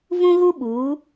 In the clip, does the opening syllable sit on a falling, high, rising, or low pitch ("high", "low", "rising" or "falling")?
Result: high